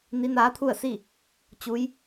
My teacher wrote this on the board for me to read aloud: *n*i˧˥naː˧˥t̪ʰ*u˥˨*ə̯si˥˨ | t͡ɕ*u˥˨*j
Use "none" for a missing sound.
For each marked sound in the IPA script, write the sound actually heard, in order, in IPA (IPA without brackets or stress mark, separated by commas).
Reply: n, u˥˨, u˧˥